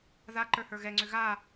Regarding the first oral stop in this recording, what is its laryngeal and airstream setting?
click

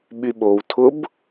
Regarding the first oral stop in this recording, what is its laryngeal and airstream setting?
implosive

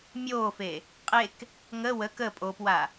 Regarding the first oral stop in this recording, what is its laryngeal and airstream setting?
ejective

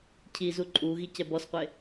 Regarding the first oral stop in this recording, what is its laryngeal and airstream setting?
aspirated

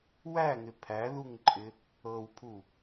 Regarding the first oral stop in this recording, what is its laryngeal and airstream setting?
aspirated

